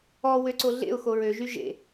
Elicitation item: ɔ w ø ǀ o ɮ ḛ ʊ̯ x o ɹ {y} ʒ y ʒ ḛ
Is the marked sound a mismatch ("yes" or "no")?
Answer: yes